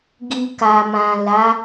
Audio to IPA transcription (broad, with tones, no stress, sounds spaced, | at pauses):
ɡ i˧ k a˨ m ã˨ l a˨˦